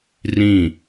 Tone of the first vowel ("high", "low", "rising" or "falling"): falling